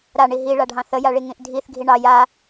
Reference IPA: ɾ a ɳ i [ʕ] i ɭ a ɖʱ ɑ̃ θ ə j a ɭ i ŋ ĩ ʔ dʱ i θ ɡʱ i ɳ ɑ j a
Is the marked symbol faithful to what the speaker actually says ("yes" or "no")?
no